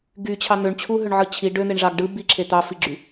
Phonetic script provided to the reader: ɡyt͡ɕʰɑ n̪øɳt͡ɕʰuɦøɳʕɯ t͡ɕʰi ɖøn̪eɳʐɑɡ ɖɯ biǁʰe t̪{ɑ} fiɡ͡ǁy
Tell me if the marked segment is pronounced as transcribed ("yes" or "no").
yes